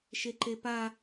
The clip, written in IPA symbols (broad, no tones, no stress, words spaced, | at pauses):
ʃeǃepa